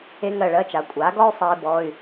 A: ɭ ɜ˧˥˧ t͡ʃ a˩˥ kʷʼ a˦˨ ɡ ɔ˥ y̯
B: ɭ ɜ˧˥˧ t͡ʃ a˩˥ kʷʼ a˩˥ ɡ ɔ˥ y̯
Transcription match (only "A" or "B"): B